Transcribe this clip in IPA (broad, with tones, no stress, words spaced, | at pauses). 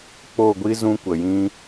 k͡po˦˨ɡʷi˦ zũ˦kʷə˨jĩ˦